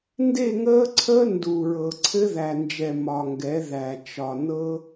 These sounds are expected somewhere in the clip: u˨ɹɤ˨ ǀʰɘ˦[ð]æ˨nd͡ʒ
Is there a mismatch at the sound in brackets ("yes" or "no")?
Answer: no